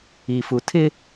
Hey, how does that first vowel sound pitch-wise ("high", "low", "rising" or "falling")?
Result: low